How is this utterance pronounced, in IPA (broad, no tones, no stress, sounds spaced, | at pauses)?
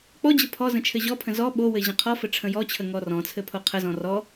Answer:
k͡p ɔ d͡ʑ ə pʰ ɔ z ə̃ t͡ʃʰ ɘ ʑ ɔ pʰ ə̃ z ɔ ɓ o w ɘ ʑ ə̃ qʰ ɔ f ɘ ʈ͡ʂʰ ə̃ j ɔ t͡ɕʰ ə ŋ ɔ r ɔ̃ t͡sʰ ɘ pʰ o qʰ ə z ɔ̃ r ɔ